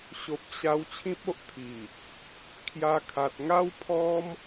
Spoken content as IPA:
ɕ o˨ p̚ ɕ a˧ w t͡ɕʰ ĩ˦ p̚ o˦ ʔ t̪ʰ i˨˩ | kʰ j a˧ kʰ a˨ t̚ ŋ a˦ w pʰ ɔ˦ m

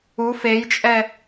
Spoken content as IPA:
u f e j t͡ʃʼ ɛ

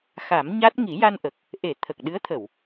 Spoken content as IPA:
x a˨˩˦ m ɲ a˦˥ t̚ ŋ i˨˩˦ j a˧ n ʔ ə˨˩ k̚ | ʔ e˨˩˨ t̪ʰ ə˨˩ k̚ ɗ ɨ˧˥ ə̯ t̪ʰ ə˨˩˨ w

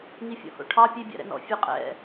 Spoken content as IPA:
ŋ i fʲ ɔ̰ h o̰ ʈʰ ɑ pʲ e bʲ ɑ̰ ɾ ɛ̰ n ɔ̰ fʲ ʉ qʼ ɛ̰

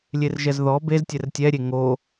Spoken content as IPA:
lʲ e r ʒ ɛ z ð ɔ b e z tʲ ɛ r tʲ ɛ ɾʲ e ŋ o

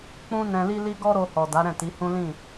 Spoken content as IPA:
k͡p ũ˧ n ɛ̃˨ l i˧ l i˧ ɡ ɔ˦ ɾ o˧ h ɔ˨ d a˨˦ ɾ ɛ̃˦˨ t i˨˦ h ũ˦ l ĩ˦˨

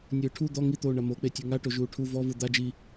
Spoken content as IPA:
nʲ ɯː ʈʰ u d̪ ɔ ŋ i t̪ oː ɳ a m o k͡p e tʲ u ŋ a ʈ o ʒ uː ʈʰ u v ɔ v ɯ d̪ a d͡ʒ i

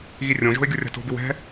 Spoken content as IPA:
ɣ i rʲ õ ʒ o̤ ɪ̯ ɡʲ ʊ rʲ a̤ t o̤ b ɪ w ɛ̤

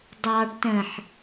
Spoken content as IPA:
dˤ ɑ ɖ t ə̃ ħ

